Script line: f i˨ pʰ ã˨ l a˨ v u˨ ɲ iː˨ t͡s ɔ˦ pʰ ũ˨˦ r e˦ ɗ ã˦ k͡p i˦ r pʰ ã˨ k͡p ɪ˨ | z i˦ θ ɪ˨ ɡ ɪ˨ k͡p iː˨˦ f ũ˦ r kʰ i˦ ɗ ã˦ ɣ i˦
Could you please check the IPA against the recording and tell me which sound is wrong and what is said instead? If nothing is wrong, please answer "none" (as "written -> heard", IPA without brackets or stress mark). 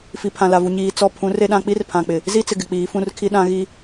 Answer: θ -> t͡s